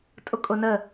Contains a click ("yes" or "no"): no